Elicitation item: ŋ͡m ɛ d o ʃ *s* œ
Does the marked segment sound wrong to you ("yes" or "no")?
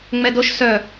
no